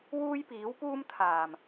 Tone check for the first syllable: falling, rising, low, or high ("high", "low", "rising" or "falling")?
high